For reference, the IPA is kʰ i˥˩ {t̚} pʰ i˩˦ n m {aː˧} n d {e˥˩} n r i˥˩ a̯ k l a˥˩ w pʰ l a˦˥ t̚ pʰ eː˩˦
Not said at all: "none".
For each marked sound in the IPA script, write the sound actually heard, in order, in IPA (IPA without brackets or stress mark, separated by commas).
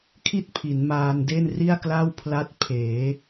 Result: t̚, aː˧, e˥˩